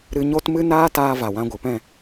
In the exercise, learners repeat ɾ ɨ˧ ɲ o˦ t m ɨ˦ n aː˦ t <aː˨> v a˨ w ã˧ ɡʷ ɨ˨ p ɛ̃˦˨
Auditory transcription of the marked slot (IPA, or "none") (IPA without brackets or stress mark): aː˧